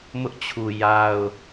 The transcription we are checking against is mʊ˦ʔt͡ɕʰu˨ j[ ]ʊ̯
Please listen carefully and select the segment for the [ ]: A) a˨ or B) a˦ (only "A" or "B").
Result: B